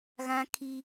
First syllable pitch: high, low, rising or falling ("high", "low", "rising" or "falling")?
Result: high